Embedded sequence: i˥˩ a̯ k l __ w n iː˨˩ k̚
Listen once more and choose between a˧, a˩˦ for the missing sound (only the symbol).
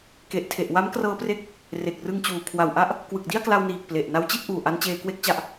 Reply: a˧